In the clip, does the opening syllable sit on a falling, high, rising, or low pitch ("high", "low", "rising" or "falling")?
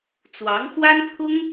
rising